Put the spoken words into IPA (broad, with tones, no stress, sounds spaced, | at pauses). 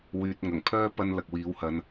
w yː˨ t̚ ŋ ɐ˨˩ ŋ pʰ œː˥ p ɐ˥ n l ɐ˨ k̚ w iː˨˥ w h ɐ˨˧ n